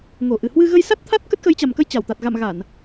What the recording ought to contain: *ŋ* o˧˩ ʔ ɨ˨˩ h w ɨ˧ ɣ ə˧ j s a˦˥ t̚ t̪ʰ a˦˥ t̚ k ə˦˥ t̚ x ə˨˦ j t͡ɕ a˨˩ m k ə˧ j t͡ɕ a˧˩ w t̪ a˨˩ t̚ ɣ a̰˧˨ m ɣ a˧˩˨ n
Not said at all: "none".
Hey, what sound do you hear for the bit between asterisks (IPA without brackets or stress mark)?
ŋ